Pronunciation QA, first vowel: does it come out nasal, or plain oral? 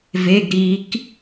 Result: oral